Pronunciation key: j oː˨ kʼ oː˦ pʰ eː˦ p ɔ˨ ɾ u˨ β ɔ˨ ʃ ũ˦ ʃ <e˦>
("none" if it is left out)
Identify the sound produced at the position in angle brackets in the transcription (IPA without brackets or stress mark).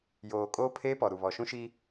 i˦